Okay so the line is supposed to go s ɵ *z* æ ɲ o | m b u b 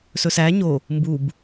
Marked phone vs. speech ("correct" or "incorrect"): incorrect